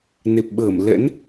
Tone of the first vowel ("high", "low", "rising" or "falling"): low